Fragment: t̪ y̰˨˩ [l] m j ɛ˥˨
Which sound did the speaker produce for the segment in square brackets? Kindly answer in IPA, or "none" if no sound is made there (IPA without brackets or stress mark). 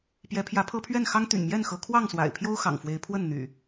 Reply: n